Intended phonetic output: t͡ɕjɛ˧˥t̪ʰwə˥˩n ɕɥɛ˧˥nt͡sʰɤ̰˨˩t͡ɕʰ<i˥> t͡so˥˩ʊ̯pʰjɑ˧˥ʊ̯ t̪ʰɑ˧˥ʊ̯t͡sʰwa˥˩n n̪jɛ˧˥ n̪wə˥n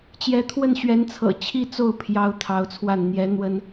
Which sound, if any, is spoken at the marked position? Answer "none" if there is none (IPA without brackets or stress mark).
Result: i˥